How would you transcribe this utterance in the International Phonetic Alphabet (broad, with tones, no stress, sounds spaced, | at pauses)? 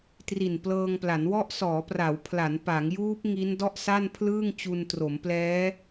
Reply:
t r i˨˩ n p l ɤː˧ ŋ p l a˩˦ n w ɔ˦˥ ʔ s ɔː˩˦ p r a˩˦ w pʰ l a˩˦ n p a˩˦ ŋ j uː˦˥ p̚ ŋ i˦˥ n d ɔ˥˩ ʔ s a˥˩ n pʰ l ɯː˥˩ ŋ t͡ɕ u˧ n t r o˩˦ m p l ɛː˦˥